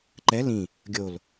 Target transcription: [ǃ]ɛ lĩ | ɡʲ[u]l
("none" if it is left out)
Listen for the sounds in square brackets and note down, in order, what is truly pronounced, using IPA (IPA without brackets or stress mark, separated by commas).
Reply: ǃ, o